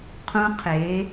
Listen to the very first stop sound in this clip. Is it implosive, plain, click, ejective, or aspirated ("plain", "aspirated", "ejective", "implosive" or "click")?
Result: aspirated